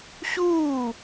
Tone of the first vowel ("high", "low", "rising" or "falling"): falling